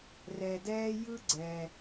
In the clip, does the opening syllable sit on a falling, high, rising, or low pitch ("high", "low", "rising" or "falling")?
low